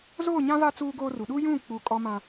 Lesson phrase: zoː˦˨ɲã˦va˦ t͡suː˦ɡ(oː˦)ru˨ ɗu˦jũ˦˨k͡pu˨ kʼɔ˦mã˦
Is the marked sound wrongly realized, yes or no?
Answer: no